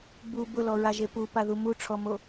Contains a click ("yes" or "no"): no